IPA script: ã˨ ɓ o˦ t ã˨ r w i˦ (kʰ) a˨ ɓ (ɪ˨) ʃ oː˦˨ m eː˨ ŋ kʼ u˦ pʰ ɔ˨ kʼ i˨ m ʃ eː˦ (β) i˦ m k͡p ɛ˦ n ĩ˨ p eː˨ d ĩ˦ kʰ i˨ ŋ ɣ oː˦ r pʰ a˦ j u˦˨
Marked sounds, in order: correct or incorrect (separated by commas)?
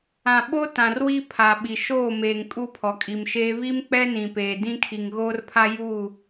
incorrect, incorrect, correct